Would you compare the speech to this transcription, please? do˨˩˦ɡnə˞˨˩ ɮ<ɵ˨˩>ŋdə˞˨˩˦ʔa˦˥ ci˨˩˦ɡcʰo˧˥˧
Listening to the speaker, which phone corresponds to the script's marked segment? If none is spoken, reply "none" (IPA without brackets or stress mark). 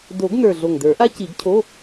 o˨˩